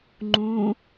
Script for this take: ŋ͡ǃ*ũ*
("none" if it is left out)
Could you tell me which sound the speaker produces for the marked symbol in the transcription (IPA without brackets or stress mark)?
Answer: ũ